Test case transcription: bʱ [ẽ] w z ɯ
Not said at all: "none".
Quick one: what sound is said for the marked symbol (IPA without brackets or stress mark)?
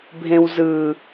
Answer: ẽ